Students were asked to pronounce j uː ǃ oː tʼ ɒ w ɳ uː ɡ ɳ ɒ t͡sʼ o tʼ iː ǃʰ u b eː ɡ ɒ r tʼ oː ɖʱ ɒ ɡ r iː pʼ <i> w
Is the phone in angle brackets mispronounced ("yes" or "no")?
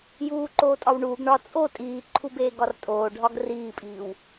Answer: yes